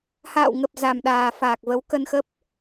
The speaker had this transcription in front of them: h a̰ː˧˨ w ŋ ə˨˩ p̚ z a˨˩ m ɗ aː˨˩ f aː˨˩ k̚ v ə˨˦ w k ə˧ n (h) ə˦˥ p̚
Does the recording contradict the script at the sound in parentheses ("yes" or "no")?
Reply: yes